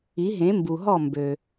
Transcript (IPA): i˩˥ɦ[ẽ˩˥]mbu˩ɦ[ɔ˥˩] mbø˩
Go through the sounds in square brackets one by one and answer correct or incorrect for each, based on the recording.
correct, correct

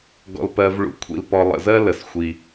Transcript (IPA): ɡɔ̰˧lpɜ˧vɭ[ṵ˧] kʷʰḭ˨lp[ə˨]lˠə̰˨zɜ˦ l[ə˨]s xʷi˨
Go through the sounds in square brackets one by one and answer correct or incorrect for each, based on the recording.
correct, incorrect, correct

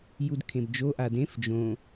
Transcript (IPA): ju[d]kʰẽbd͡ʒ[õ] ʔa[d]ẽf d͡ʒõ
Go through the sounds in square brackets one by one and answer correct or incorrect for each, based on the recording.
correct, incorrect, correct

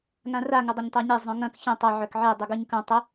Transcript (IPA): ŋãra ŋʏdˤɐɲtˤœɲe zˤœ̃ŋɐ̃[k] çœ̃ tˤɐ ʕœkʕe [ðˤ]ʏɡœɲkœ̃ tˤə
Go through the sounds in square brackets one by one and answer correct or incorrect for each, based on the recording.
correct, incorrect

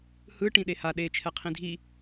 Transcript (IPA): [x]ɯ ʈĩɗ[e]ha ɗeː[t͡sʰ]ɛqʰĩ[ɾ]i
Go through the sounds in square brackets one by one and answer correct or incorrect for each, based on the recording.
incorrect, correct, incorrect, incorrect

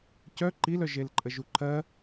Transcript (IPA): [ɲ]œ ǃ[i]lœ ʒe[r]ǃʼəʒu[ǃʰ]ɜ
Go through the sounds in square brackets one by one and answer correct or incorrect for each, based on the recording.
incorrect, correct, incorrect, correct

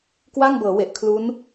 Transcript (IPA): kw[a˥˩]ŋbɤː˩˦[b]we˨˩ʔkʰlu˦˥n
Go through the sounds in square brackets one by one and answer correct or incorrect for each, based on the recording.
correct, incorrect

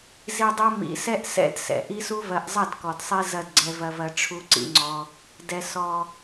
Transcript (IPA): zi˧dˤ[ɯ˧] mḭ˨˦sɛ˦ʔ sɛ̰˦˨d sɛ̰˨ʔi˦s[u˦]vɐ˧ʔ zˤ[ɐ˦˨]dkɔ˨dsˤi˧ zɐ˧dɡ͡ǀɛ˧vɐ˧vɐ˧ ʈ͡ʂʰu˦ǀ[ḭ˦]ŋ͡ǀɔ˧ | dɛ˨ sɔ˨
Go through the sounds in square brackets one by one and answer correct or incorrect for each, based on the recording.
incorrect, correct, correct, correct

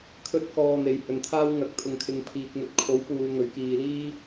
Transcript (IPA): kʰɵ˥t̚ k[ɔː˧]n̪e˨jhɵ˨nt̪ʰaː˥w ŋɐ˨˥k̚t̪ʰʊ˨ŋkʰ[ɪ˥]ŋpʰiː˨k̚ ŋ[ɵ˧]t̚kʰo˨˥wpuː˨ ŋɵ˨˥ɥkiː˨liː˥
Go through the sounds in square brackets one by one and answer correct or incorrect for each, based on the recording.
correct, incorrect, incorrect

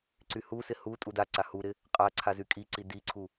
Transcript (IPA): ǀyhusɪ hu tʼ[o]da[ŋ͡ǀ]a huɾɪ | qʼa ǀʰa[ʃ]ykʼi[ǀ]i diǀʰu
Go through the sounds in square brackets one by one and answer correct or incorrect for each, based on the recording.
incorrect, incorrect, incorrect, correct

